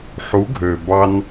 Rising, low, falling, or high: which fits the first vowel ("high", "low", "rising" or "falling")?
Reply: rising